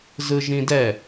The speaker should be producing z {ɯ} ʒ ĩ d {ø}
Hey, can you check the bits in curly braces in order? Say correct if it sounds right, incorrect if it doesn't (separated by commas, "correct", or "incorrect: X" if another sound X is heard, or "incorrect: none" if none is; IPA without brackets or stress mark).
correct, incorrect: ɛ